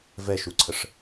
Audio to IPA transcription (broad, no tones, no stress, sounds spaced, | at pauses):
v ɛ ʃ u ǀʰ ə ʂ